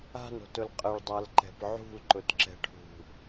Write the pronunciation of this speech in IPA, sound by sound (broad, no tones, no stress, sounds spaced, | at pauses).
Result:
a̤ n o̤ t ʊ l qʼ ə ɭ dˤ a l ǃ ɛ̤ p ʕ ṳ l ǃ ʊ t ǁ ɛ̤ ʈʰ ṳ